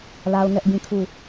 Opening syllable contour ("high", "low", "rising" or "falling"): high